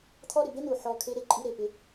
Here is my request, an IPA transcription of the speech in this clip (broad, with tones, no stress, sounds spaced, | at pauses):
t̪ʰ ɔ˥ ɾ ɪ˩ b e˥ n̪ u˩ ħ ɔ˨ kʰ e˥ ɾ e˦ ǃʼ i˥ ɾ e˩ p ɪ˥